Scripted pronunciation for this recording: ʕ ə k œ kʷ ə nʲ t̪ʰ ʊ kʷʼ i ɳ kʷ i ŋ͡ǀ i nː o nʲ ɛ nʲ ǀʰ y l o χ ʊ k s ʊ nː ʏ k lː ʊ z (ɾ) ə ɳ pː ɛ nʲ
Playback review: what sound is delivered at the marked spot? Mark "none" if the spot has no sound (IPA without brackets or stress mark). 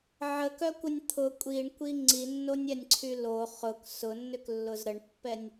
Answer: ɾ